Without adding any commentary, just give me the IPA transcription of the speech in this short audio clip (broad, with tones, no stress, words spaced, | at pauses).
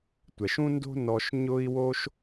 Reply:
tʷɛ˨ʃũ˦ndo̤˦nɔ˧ʃ ɲʊ˦i̯wo˦ʃ